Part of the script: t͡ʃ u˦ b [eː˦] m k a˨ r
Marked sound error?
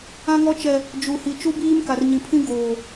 yes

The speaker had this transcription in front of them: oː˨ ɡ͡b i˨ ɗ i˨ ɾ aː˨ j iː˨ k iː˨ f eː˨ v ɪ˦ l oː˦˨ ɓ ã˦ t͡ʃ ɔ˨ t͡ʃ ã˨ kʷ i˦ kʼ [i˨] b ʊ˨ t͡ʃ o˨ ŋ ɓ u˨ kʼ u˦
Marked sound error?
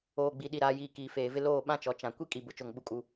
no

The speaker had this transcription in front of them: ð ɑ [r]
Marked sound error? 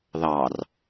no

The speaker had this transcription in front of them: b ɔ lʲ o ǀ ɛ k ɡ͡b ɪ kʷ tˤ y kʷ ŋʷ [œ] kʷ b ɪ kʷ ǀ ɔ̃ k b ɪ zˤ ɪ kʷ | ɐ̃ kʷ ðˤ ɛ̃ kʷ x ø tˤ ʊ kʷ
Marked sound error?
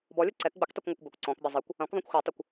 no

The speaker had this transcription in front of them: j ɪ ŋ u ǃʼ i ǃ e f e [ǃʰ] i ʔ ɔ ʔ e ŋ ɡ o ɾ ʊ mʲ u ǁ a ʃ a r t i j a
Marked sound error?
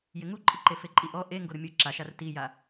yes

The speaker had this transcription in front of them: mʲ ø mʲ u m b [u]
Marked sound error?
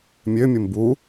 no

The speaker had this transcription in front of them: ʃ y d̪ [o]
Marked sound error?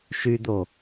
no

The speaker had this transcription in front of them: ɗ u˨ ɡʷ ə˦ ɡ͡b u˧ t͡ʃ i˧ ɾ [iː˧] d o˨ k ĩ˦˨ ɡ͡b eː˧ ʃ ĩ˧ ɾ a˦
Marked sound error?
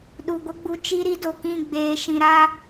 yes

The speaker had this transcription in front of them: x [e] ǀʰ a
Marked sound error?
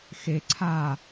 no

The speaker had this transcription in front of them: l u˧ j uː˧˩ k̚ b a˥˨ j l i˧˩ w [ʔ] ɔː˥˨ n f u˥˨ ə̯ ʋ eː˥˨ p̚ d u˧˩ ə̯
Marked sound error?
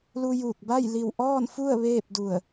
no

